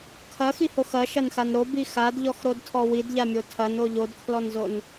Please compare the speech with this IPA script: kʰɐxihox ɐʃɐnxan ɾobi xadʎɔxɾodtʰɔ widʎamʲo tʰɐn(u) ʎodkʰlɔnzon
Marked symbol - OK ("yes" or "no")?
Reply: no